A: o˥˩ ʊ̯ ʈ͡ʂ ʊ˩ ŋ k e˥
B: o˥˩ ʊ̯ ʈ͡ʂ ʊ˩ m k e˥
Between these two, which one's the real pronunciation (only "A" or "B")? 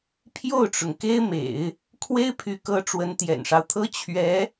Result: A